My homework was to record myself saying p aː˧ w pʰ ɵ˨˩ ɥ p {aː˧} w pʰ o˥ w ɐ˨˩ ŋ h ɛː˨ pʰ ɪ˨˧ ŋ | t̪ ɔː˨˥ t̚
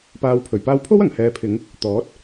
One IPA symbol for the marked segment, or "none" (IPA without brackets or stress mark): aː˧